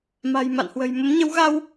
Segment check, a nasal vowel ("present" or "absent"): absent